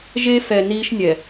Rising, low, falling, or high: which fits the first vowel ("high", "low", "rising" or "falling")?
high